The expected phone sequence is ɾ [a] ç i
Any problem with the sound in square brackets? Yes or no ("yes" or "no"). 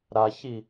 no